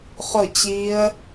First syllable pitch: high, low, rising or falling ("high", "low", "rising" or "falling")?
falling